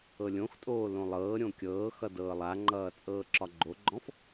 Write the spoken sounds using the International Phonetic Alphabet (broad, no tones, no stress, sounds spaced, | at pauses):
ɤ lʲ õ x tʼ oː l õ lˠ ɤː ɾʲ õ kʲ ɤː x ʌ d ɤː lˠ a ŋ͡ǃ ʌː t͡sʼ ɤː ǁ ɒ ɡ͡ǃ o ɡ͡ǃ ɔ̃ f